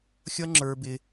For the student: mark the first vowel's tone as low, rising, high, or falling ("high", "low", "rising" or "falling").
high